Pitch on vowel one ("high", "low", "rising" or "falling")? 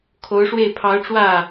rising